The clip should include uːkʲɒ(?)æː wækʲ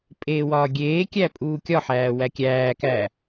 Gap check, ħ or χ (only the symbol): ħ